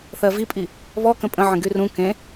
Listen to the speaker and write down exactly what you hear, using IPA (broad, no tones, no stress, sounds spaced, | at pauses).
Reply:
θ ɜ v i pʼ i | β ɔ k ə̃ pʼ ə̃ ʕ ə̃ ɡ y r ũ k ẽ